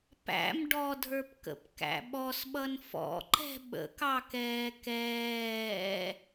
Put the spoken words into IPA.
pæ̰m ɖɔdʱə˞pkə̰p kæ̰ɓɔsɓʌn fɔ̰ǃɛ̤ ɓə̰kɑkɛː kɛː

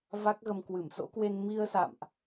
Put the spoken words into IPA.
va˦˥k̚ɣə˧m kwɨ˧˩mso̰˧˥kwe˧n mi˧ə̯sa̰˧˨mʔ

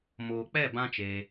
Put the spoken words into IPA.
moː˨ k͡pɛ˦˨ bã˦t͡ʃeː˧

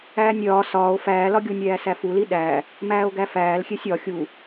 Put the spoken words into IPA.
æːnʲɾʲɒː sɒːo̯ fæːlɒɡʲonʲɾʲæː sæfuli ɗæ | mæːo̯ɡæfæːlxʲesʲ ɒ xʲu

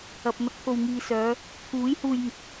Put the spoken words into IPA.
ɐ˨p̚ n̪ɐ˨˥k̚t̪ʰo˨wŋiː˨sœː˨˧ | t̪ʰuː˨˥j huː˧jŋɪ˨˥k̚

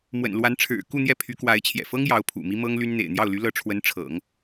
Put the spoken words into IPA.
mwə̰˨˩nlwa˧˥nʈ͡ʂʰɻ̩˨˩ ku˥˧n̪jɛ˥˩ pʰy˧˥kwa˧˥ɪ̯t͡ɕʰjɛ̰˨˩ fɤ˥ŋ jɑ˧˥ʊ̯pʰṵ˨˩mi˥ mɤ˥ŋly˥nn̪ḛ˨˩ɪ̯ n̪jɑ˥˩ʊ̯ly˧˥lɤ˧˥ ʈ͡ʂʰwə˧˥n ʈ͡ʂʰɤ̰˨˩˦ŋ

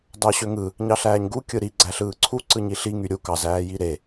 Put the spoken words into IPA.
dɑɕøŋɯ | ɲɑɬæːɲɡu kʲɯɾi ɡ͡ǀæɬɯːǀʰu ǀɯɲiɬi ŋyɾʲu kɑz æːjiɾe

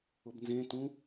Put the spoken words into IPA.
ʊbnzẽtũ

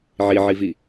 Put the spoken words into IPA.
ʕiʕivi

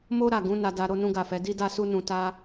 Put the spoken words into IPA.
mo˦ɾa˦˨ɡũ˨˦ na˧da˧ ɾo˦nũ˦ɡa˦˨fɛ˨˦ di˦da˦su˦nũ˧ ta˦

